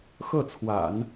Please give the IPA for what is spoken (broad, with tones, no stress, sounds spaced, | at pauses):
x ɤ˥˩ t͡sʰ w a̰˨˩˦ n